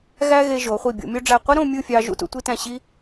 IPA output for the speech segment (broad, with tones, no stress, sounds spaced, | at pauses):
ɣ æ˥ ɣ e˧ ʒ o˩˧ χʷ i˧˩ bʲ o̰˩˧ mʲ o˧ ɖ͡ʐ æ˧˩ qʷ i˥ ɾ õ˥˧ mʲ ɯ˥˧ fʲ ɑ˧ ʒ ṵ˧ t ṵ˩˧ tʷ i˧ t æ̃˧˩ ɕ i˧